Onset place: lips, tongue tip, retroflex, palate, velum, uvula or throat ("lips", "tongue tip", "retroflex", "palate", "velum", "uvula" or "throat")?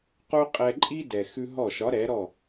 uvula